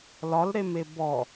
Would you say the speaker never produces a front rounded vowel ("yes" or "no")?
yes